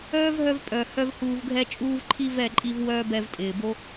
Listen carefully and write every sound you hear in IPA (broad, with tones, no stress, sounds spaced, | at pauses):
œː˦ v ɦ œ˧ v pʼ œ˨ h œ˦ v h uː˧ v ɡʱ ɛ˦ t͡ʃʼ uː˦ v ǃʰ i˦ v ɛ˦˨ ǃʼ i˧ v w œː˦ b ɛ˧ v tʼ ɪː˨ b o˦